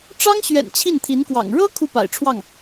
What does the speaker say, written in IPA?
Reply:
ʈ͡ʂɑ˥ŋɕɥɛ̰˨˩n t͡ɕʰi˥˩nt̪ʰi˧˥nkwɑ̰˨˩ŋ ɻɤ˥ kʰu˥˩pa̰˨˩ɪ̯ʈ͡ʂʰwɑ˥˩ŋ

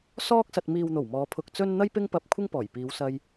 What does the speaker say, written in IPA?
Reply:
sɔː˧k̚sɐ˨t̚miː˨wn̪o˨˩w mɔː˨˧pʰʊ˧k̚t͡sɵ˥n n̪ɐ˥jpɪ˥ŋpɐ˧p̚ kʷʰɪ˥ŋpɔː˨˩jpiː˨˧wsɐ˧j

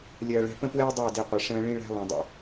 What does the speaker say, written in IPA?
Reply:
lʲɐː˨ɭɛ̤˨pə̃˦pwɛ˦o̯ dˤɐ˦˨e̯di˨ qʷɐ˨ ʂə̃ː˦ ɭĩ˦ɭæ̤˦ lˠĩ˨dˤə̰˦

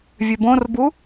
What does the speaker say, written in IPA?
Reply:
vʲøbõrbu

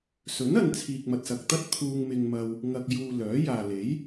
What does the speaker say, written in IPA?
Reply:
sɵ˨˥nɐ˨n t͡sʰiː˨k̚mɐ˨t̚sɐ˨k̚t̪ɐ˥t̚ t̪ʰuː˧ŋmɪ˧ŋmɐ˧w | ŋɐ˨k̚juː˨ lœː˨˥ jaː˨ le˨˥j

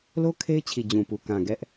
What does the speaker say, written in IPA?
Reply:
lo˦ kʰe˦ɪ̯t͡ɕʰi˨ d͡ʑũ˨pu˨ kã˨ɡɛ˦ʔ

